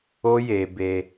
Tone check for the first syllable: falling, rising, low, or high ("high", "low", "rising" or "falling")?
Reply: high